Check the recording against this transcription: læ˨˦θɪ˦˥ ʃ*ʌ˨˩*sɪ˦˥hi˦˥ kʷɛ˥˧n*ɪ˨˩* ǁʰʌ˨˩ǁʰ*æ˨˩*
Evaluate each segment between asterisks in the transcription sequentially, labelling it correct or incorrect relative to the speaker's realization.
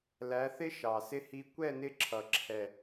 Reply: incorrect, incorrect, incorrect

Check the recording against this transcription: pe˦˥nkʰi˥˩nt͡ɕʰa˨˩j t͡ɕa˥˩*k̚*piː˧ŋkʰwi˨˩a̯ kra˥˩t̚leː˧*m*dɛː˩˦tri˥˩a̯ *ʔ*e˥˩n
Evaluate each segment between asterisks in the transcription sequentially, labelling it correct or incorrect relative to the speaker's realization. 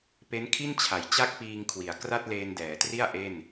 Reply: correct, incorrect, correct

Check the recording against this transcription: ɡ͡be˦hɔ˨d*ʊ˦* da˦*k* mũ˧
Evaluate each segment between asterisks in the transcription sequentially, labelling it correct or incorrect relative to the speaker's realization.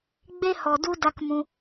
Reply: incorrect, correct

